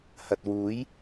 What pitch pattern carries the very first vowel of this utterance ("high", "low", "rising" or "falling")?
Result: low